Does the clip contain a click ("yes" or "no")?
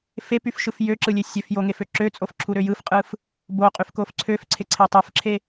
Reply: yes